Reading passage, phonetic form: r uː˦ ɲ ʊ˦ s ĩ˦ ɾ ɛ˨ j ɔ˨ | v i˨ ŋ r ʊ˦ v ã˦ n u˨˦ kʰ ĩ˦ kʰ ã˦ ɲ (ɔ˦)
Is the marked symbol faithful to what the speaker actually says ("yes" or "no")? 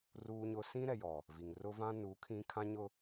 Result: no